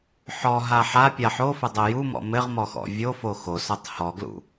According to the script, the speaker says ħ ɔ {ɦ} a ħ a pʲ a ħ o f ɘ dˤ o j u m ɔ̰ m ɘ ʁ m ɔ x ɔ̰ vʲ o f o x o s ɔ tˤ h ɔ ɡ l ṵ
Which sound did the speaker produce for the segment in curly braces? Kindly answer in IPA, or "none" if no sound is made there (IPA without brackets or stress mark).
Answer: ɦ